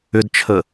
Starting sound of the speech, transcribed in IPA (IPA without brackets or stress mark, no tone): ʏ